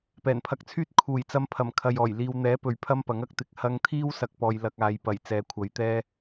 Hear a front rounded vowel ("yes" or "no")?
yes